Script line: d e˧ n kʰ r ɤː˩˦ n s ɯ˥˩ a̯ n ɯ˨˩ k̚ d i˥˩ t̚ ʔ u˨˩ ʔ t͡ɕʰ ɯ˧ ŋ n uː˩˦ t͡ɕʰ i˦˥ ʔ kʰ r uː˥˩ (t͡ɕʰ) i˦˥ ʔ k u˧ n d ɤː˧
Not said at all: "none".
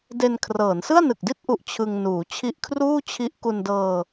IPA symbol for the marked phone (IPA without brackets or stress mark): t͡ɕʰ